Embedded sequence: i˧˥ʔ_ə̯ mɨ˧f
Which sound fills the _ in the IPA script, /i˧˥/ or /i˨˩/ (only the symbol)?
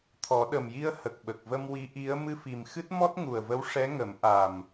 i˧˥